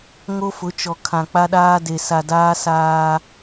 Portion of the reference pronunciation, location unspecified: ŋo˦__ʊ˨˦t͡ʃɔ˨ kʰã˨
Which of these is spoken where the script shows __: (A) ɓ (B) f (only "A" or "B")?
B